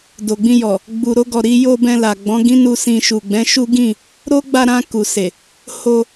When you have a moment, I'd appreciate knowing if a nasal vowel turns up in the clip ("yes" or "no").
yes